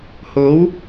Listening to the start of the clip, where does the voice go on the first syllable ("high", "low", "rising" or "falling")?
rising